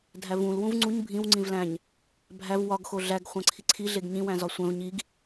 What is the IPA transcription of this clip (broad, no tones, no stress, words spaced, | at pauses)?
dʱævũl wũvŋ͡ǀuɲ bʱĩw ŋ͡ǀĩvlæ̃ɲ | bʱæv wɒɡ xoɮæɡ χʷæ̃ǀʰiǀʰi ɮeɡɲĩ wæ̃zɒsʷæ̃v ɲiɡ